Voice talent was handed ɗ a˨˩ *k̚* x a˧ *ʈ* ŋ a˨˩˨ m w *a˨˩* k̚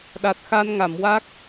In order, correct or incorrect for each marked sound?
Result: incorrect, incorrect, incorrect

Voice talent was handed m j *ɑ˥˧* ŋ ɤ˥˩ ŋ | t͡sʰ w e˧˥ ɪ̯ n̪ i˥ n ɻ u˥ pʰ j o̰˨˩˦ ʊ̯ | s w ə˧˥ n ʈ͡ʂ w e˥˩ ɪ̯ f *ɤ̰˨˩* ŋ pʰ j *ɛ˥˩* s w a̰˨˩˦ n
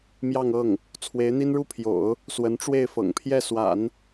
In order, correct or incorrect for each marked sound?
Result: correct, correct, correct

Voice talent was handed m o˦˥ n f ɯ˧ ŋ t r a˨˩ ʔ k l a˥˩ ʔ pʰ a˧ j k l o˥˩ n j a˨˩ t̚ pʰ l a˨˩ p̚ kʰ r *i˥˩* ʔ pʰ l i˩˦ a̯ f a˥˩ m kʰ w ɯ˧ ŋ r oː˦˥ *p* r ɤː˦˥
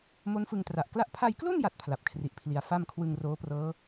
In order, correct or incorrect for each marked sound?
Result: incorrect, correct

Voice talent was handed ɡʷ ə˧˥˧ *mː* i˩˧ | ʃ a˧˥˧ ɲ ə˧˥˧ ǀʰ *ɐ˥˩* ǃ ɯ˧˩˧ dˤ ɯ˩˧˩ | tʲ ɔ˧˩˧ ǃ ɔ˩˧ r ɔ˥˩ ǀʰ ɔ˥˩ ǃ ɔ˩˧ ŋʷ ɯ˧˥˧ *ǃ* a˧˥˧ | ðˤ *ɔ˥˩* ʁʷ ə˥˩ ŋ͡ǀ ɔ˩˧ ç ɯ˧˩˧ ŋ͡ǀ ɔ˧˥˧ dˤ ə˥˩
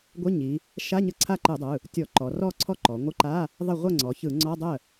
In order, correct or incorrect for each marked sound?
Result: incorrect, incorrect, correct, incorrect

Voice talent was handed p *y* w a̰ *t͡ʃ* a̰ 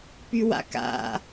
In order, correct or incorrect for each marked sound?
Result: correct, incorrect

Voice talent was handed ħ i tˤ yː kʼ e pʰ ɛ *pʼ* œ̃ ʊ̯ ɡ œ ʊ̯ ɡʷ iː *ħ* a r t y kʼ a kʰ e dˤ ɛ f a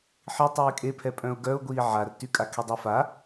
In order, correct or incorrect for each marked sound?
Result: correct, incorrect

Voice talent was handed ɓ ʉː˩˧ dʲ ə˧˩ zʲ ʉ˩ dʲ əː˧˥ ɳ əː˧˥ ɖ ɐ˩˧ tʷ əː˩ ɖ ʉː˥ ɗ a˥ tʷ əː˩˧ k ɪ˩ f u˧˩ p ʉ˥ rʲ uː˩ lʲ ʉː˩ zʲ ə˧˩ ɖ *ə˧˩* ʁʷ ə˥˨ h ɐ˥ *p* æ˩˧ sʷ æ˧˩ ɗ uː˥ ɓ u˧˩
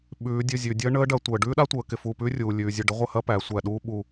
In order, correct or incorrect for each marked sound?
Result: incorrect, correct

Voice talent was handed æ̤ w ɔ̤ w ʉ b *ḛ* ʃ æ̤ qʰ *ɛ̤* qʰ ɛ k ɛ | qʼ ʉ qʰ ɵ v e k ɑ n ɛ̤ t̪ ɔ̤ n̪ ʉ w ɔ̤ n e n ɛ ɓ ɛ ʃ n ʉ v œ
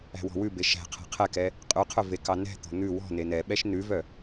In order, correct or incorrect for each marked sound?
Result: incorrect, correct

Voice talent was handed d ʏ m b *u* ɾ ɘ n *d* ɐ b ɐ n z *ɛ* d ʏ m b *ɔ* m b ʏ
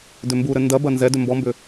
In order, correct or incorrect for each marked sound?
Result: correct, correct, correct, correct

